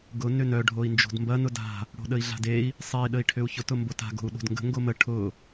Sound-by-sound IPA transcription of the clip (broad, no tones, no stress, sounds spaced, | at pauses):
ɡ ʊ n ʏ n œ ɖʱ o i̯ n d͡ʒ o̤ d m b ɐ n ʊ d a̤ | ɽ o̤ ɗ ə i̯ ɮ a̤ d e i̯ | sˤ e i̯ ɗ ə i̯ ʈʰ ʏ u̯ ç ʊ t ʊ m b o t a̤ ɡ o̤ u̯ ɗ o̤ d ŋ ɡ ə̤ ŋ ɡ o m ə ʈʰ ʊ